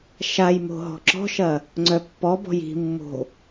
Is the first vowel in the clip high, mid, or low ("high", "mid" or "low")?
low